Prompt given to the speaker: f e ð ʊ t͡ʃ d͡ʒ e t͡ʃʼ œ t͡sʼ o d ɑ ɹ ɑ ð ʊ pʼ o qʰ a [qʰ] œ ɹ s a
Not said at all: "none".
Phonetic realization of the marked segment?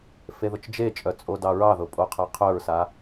qʰ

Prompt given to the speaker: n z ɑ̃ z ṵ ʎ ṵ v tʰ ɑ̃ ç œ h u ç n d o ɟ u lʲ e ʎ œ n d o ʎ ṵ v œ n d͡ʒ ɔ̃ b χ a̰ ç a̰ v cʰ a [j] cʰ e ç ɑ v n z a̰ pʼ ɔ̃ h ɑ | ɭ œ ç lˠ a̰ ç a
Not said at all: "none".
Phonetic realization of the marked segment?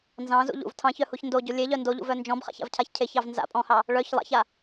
ç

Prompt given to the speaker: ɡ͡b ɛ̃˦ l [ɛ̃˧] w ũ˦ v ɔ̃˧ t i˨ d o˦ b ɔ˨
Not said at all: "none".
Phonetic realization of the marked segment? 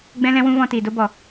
ɛ̃˦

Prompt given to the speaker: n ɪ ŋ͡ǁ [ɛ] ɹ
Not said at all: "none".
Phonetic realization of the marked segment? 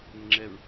ɛ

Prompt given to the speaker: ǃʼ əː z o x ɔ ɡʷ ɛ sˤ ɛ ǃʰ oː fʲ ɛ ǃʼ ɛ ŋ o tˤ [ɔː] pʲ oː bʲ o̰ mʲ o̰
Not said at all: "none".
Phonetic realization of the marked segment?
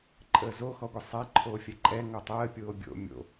əː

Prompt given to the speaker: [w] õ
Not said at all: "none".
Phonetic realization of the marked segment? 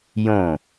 j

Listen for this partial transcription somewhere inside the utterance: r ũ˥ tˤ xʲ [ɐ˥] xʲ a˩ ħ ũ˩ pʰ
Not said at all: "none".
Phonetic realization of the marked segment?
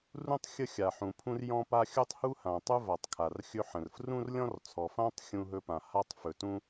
ə˥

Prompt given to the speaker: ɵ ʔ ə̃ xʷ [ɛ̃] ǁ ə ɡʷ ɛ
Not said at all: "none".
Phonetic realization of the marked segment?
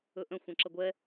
ɛ̃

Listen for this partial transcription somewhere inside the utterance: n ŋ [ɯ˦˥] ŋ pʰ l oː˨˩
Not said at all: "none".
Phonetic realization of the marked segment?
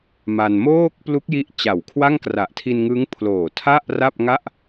ɯ˦˥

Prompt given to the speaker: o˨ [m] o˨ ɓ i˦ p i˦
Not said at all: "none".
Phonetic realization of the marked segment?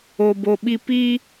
b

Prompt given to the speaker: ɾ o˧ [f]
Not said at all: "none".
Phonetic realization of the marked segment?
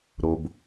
b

